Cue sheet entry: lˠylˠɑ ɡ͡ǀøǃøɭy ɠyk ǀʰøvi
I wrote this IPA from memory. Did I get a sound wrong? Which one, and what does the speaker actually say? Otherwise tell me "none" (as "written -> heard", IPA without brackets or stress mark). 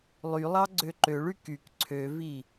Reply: ɠ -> k